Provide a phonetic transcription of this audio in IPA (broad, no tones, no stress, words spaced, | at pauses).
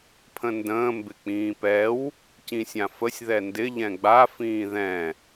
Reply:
pʰə̃ndə̃ː mbɪk͡pĩːpɛw | cĩsʲãfəsʲ ðɛndɪ ʎɛ̃ɡ͡ba fĩːðɛ̃